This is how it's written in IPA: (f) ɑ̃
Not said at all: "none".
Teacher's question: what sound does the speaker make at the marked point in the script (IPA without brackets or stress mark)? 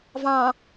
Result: v